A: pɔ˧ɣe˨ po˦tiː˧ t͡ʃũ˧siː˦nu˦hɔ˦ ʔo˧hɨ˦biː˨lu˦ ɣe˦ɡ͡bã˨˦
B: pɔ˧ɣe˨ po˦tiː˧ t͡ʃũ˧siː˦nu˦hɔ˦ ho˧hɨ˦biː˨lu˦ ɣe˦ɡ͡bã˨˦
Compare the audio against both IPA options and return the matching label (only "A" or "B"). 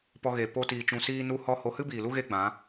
B